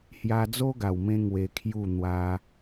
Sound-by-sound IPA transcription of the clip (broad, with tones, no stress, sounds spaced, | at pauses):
h j a˧ d͡z o˦ ɡ a˨˩ w m ẽ˧ ŋ w e˧ kʰ j u˥˧ n̪ w a˦